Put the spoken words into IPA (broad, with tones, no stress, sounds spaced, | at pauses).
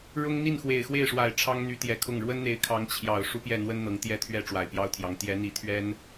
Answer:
ɻ ʊ˥ ŋ n̪ i˥˩ n x w e˨˩ ɪ̯ x w e˥˩ ɪ̯ ʂ w a˨˩ ɪ̯ ʈ͡ʂʰ ɑ˥ ŋ n̪ y˧˥ t̪ j ɛ˨˩ kʰ ʊ˥˩ ŋ ɻ w ə˥ n n̪ e˧˥ ɪ̯ kʰ ɑ˧˥ ŋ t͡ɕʰ j ɑ˨˩ ʊ̯ ʂ u˥ p j ɛ˥˩ n̪ w ə˥ n n̪ ɤ˧˥ ŋ t̪ j ɛ˥˧ t̪ʰ ɥ ɛ˥˩ ʈ͡ʂ w a˨˩ ɪ̯ p j ɑ˥ ʊ̯ t̪ʰ j ɑ˧˥ ŋ t̪ j ɛ˧˥ n̪ i˧˥ t̪ʰ ɥ ɛ˥ n